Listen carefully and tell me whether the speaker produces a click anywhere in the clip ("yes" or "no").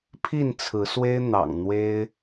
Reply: no